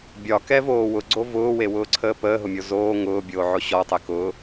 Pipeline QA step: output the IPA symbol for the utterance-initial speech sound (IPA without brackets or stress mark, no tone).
bʲ